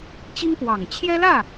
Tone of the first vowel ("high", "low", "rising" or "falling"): high